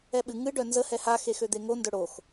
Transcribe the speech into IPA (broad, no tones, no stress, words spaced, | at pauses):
ɛɓɨ ŋɨ ɖœnzə hɛha xexød̪eŋo ndœɽox